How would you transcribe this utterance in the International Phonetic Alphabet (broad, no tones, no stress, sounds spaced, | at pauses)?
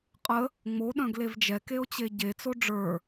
qʼ ə | ŋ͡m o ɗ œ̃ ɡ l e v d͡ʒ ɛ k e o̯ t͡ɕ e ɟ e t͡s o ɖ͡ʐ ə˞